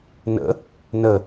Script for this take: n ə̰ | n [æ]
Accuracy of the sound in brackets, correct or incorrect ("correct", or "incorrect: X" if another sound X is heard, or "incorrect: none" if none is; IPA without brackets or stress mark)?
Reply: incorrect: ə